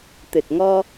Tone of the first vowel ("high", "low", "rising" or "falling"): low